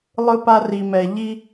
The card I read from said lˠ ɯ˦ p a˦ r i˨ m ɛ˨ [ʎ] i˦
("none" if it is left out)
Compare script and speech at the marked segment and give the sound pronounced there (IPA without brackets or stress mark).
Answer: ʎ